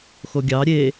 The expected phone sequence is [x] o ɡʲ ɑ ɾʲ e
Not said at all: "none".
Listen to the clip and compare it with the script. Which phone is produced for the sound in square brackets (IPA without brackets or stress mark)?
x